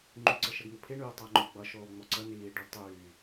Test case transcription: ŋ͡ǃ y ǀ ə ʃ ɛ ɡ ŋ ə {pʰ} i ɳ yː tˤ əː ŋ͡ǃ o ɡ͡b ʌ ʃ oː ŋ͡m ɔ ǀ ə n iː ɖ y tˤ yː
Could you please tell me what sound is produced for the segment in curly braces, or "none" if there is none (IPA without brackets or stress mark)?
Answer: pʰ